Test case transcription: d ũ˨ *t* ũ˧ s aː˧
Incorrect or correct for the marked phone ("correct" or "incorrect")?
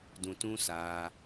correct